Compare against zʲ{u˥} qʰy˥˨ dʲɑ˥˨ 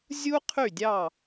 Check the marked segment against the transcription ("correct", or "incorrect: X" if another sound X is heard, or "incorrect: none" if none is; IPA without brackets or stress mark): correct